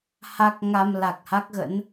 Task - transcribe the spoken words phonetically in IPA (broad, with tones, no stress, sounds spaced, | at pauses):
h a˦˥ k̚ ŋ a˧ m l a˨˩ k̚ h a˦˥ k̚ ɣ ə̰˧˥ n